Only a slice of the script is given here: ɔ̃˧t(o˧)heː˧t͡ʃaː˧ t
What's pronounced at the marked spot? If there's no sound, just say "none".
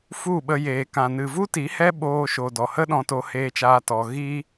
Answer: o˧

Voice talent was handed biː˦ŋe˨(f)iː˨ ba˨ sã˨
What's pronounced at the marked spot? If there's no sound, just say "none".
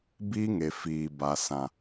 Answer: f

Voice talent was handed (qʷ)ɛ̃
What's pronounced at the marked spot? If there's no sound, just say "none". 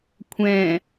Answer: kʷʰ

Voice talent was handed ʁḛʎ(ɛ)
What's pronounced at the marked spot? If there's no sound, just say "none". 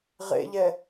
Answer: ɛ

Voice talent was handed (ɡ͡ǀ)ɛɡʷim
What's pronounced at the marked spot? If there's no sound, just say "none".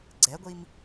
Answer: ɡ͡ǀ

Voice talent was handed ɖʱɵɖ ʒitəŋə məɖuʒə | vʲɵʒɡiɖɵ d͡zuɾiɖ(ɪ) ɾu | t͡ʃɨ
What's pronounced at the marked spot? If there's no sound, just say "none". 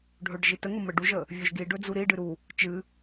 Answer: ɨ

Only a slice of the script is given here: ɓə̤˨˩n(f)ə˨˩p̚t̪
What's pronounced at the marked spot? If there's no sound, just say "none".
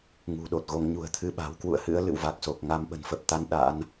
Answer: f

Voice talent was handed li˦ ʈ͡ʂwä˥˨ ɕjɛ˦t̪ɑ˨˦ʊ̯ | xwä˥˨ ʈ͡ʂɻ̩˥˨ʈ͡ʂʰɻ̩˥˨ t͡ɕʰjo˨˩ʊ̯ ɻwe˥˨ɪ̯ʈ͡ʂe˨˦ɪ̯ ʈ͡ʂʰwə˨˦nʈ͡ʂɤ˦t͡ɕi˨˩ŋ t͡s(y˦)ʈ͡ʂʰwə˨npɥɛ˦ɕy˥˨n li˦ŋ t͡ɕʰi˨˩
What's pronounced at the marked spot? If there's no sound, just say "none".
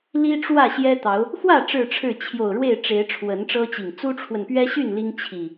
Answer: u˦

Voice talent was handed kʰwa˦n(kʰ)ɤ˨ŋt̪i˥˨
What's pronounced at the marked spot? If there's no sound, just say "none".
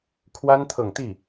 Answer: t̪ʰ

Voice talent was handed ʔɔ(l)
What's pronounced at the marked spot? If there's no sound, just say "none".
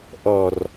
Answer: r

